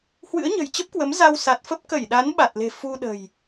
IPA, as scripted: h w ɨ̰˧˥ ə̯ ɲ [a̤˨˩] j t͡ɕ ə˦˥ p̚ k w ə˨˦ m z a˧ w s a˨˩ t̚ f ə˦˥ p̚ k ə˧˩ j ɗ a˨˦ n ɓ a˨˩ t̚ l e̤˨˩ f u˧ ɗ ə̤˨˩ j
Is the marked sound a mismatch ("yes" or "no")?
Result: yes